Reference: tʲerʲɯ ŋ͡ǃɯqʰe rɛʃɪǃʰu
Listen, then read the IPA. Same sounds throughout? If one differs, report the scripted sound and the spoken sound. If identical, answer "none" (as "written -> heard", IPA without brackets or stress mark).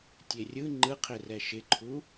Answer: none